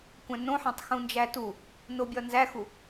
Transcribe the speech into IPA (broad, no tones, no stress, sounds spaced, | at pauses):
kʷ æ̃ n õ ħ æ̃ tˤ x ũ n d͡ʒ æ t u | n o bʲ ɒ n z æ x u